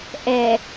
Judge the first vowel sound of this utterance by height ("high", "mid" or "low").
mid